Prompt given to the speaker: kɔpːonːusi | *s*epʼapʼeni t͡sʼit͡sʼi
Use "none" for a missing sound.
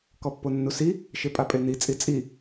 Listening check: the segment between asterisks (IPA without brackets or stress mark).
ʃ